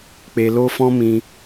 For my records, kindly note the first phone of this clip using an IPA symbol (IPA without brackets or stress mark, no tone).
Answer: k͡p